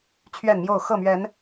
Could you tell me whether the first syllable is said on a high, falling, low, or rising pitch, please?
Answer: falling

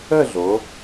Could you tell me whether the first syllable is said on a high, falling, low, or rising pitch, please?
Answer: falling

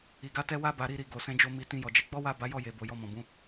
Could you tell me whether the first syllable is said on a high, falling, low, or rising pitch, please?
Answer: low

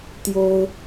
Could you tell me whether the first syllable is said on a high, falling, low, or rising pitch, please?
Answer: high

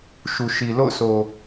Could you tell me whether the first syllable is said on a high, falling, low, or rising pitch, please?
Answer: low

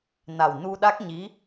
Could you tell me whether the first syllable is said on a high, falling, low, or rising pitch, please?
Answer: low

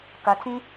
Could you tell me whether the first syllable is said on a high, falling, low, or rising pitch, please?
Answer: low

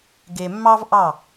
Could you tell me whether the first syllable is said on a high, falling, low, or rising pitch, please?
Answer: low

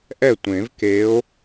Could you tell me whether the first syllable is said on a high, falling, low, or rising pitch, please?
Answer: falling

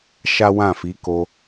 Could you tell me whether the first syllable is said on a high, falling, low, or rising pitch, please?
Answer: high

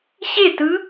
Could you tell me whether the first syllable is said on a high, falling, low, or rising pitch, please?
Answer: falling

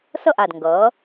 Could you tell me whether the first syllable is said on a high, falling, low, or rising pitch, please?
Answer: falling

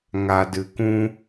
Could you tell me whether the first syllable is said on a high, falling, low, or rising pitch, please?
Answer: low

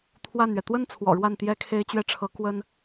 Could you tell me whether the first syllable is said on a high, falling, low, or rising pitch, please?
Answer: falling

